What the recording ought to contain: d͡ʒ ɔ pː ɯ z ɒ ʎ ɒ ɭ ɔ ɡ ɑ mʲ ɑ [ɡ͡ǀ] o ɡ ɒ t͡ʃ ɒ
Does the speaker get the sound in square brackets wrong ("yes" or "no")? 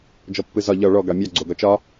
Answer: no